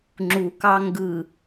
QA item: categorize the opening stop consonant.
click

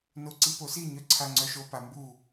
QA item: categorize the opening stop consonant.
click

